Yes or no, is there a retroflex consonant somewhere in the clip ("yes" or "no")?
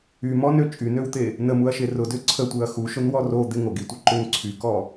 no